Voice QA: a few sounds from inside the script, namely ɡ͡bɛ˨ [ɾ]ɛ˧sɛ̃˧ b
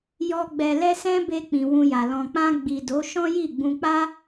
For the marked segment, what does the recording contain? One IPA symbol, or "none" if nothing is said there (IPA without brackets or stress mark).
l